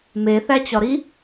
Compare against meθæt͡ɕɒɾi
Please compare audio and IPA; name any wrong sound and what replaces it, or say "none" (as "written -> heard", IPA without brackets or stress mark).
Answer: none